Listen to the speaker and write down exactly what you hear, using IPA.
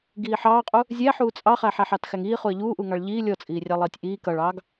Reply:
ɡiːħɑːqʼu | zʲæ ħuːt͡sʼɑχæ ħæħɑtxæŋiː χuə̯ʎuːʔuŋɑɭ ʎiː lʲɔt͡sʼiːrʲɑ lˠiːtʲʔiː kʌɭɑːɡ

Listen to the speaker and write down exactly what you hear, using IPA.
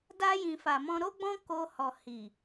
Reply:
da˧jĩ˨ fa˨mɔ̃˧ɾo˦ɡ͡bɔ̃˦ ko˧hɔ˨ hi˨

